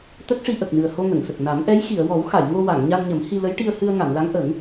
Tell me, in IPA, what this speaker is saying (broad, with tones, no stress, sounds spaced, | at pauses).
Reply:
t̪ ə˦˥ k̚ ʂ i˧ ʔ ə˨˩ k̚ n ɨ˨˩ ə̯ h o˧ ŋ ə˨˩˨ ŋ s ə˨˩ k̚ n a˨˩˦ m ʔ ɛ˧˥ j x i˨˩˨ ə̯ w ɔ˨˩˦ w x a˨˩˨ j ŋ o˧ w a˨˩˨ ŋ ɲ a˧ n ɲ ə˨˩˦ m h i˧ l ə˧˥ j ʈ i˧ ə̯ h ɨ˧ ə̯ ŋ a˨˩˨ n l a˧˥ ŋ ʔ ə˨˩˦ ŋ